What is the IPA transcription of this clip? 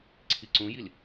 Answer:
ǀʰ i ǀ ũ j i l

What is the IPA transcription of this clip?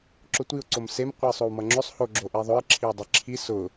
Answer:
ǁ ʊ tʷ i ʊ̯ ǀ o m s e m qʷ ɯ ɪ̯ sˤ o w m ʌ ŋ͡ǁ ʏ sˤ h o ɡ͡ǁ o ʔ i ðˤ ʊ ɪ̯ ǁʰ i w dˤ i ǁʰ i s ʊ

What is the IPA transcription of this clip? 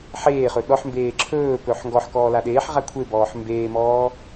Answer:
ħ eː χ ɵ ɗ ɔ ħ m b eː ǁʰ ɵː p ɵː ħ ŋ ɡ ɔ ħ k ɔː l a ɗ eː ħ ʁ a kʷʰ e b ɔː ħ m b eː m ɔː

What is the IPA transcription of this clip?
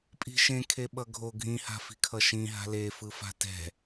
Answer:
pʼ i̤ ʃ ẽ kʰ e ɓ ʌ ɡʱ o ɡʱ ĩ h a̤ f i̤ kʰ ʌ ʃ ĩ ɦ a̤ l e f ɯ f a̤ t ɛ̤

